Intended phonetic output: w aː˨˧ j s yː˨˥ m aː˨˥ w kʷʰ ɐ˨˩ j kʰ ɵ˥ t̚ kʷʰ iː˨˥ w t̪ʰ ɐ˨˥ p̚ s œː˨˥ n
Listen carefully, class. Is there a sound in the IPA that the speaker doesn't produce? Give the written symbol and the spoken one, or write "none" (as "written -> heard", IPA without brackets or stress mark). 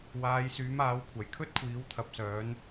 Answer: none